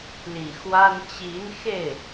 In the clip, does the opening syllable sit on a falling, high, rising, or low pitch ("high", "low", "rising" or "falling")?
low